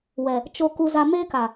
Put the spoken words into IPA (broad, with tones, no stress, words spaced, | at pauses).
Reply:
wɛ˨ | t͡ʃo˦ ku˦za˦ meː˦ka˨